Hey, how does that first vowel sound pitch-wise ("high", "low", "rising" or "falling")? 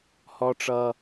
high